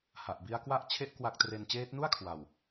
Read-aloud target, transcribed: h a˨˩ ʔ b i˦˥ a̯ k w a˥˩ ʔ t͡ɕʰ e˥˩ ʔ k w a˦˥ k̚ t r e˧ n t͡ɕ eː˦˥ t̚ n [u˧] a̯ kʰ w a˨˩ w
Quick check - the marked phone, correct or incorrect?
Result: incorrect